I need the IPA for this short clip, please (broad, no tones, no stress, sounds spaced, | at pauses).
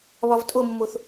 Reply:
β ɒ v tʼ o mː o θ